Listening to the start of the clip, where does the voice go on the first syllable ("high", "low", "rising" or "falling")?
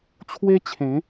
high